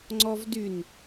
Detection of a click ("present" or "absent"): present